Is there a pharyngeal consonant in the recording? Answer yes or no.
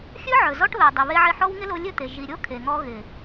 yes